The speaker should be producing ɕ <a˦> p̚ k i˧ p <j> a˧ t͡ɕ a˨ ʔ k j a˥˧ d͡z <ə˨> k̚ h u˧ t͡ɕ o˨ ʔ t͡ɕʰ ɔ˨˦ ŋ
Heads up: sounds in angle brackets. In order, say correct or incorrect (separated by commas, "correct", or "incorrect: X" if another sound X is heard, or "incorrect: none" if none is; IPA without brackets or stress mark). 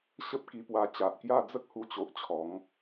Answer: incorrect: ə˦, incorrect: w, incorrect: ə˦